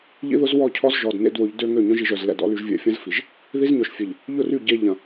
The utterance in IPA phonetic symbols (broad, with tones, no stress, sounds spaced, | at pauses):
ʎ ḭ˦ ð ʊ˦ z w ɔ˦˨ cʰ ɔ˦ z ʒ ɔ˨ d n ḛ˦ d w ʊ˨˦ ʎ d ø˦ ŋ ø˦˨ ɲ œ̃˦ ʒ i˨ ʒ œ˨ z l ɛ̰˨ d ɔ̰˦ l y˨ ʒ vʲ ɛ̰˨ fʲ ɐ̃˦ z f i˨ ʒ | ð i˦ z ɲ œ˨ ʃ fʲ e˨ ʎ | ʎ ʊ˦˨ r y˦˨ ɟ e˦ ʎ ɐ̃˨